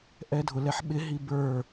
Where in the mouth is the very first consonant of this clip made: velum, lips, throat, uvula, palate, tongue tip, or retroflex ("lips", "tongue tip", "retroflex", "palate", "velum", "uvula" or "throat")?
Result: throat